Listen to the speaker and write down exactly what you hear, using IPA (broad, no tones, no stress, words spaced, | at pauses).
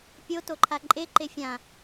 pʲo toǃʰaǃʼe ǃefʲã